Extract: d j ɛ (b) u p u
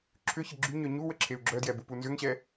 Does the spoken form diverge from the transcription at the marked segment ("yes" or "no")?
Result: no